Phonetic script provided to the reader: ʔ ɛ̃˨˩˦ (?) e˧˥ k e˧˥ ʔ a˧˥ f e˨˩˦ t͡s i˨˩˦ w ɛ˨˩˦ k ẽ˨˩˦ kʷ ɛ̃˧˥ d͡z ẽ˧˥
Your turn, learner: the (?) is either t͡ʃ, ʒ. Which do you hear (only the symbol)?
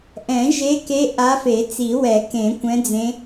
ʒ